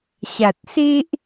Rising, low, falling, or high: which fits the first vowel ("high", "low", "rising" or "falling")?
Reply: low